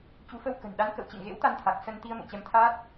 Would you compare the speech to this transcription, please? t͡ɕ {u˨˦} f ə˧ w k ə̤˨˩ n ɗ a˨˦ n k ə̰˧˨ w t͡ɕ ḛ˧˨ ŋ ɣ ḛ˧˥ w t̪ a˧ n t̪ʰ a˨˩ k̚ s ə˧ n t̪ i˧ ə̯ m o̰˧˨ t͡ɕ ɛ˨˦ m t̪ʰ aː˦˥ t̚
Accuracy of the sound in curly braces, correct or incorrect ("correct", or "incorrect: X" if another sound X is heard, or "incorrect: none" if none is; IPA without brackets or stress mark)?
correct